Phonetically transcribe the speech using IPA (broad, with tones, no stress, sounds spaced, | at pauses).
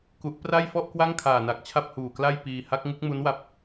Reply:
k u˦˥ ʔ p r a˥˩ j f ɔ˥˩ ʔ k w a˥˩ ŋ kʰ aː˨˩ n a˨˩ k̚ t͡ɕʰ a˥˩ p̚ h uː˨˩ k l a˥˩ j p iː˧ h a˦˥ k̚ ŋ u˦˥ k̚ m u˦˥ n w a˦˥ p̚